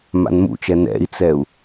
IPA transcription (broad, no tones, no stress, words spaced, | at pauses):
ma̰nmṵt͡ʃɛ nɛ̰i̯t͡sɛu̯